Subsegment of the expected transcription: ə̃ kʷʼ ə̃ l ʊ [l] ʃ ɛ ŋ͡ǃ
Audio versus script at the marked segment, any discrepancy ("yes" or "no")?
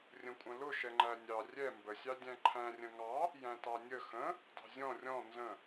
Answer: yes